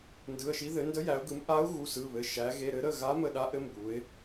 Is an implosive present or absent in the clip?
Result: present